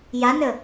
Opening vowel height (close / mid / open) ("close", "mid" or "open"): open